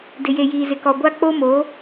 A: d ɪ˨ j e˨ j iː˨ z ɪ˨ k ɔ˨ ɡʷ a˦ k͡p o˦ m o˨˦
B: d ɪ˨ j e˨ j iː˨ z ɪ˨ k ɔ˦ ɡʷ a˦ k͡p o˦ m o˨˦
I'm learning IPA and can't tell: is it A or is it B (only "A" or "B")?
A